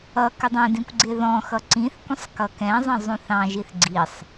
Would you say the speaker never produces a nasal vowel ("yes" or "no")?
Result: no